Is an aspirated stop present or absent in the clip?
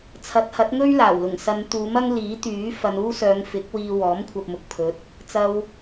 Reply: present